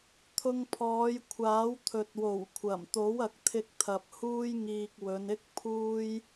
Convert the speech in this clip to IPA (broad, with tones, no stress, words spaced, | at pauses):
t̪ʰʊ˧ŋpʰɔː˨˧jkʷʰaː˨˥w t̪ʰɵ˨t̚wo˨˩wkʷʰɐ˨˩m t̪o˨˥wɐ˨k̚t̪ʰɪ˧k̚t̪ʰɐ˨p̚ huː˥jŋiː˧k̚wɵ˨˧nɪ˥k̚ pʰuː˥j